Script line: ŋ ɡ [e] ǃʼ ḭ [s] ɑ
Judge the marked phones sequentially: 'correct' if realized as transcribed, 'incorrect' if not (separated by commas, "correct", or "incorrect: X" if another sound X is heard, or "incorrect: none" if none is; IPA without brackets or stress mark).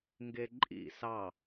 correct, correct